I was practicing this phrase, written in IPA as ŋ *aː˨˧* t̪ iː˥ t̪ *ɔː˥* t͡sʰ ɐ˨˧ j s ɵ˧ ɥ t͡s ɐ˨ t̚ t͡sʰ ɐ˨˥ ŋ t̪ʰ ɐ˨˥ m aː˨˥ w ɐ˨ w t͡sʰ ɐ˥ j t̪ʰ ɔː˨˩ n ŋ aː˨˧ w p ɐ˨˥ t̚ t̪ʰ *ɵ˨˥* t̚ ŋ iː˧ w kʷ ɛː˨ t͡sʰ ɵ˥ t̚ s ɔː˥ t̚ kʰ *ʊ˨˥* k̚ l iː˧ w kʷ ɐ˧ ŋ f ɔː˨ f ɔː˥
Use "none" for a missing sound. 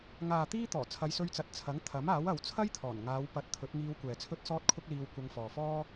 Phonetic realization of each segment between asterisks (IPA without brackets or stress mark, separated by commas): aː˨, ɔː˨˩, ɵ˨˥, ʊ˥